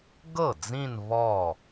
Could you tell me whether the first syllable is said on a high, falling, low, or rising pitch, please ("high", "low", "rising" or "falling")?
falling